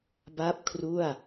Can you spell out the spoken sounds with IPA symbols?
b a˥˩ p̚ kʰ r u˥˩ a̯

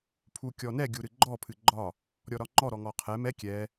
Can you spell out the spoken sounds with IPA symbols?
pʰ u kʲ ɔ n ɛ ɡʲ u ɾ ɨ ɡ͡ǃ ɔ pʰ ɨ ɡ͡ǃ ɒ | ɾʲ ɔ ɾ ɒ ŋ͡ǃ ɔ ɾ ɔ ŋ ɔ qʰ ɛ m ɛ kʲ ɛ

